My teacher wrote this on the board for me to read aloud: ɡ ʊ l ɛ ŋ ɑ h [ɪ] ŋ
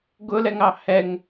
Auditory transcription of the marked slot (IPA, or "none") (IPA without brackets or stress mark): ɛ